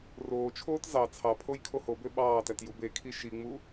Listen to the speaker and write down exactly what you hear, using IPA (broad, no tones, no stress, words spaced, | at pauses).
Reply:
roːt͡ʃʰoːt zɑ t͡sʰɑpʰoj kʰohobø ɓɑːtæt jubekʰi ʃiŋ͡mu